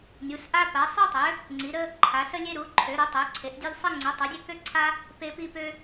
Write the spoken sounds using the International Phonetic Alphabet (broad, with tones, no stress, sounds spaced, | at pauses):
nʲ u˨˦ s ʔ a˦ p a˨˦ sˤ u˦ tˤ ø˨˦ | ŋ͡ǀ i˨˦ ɾ ə˦ | ǃʰ a˨˦ s ə˦ lʲ e˦ ɾ u˨˦ ǃʰ ø˨˦ ɾ u˨˦ tˤ ø˨˦ ǀʰ e˨˦ ʔ dʲ e˦ lʲ sˤ i˦ ŋ͡ǀ o˨˦ tˤ o˨˦ dʲ ø˦ k ø˦ ǀʰ a˦ | p e˦ p i˦ p ø˦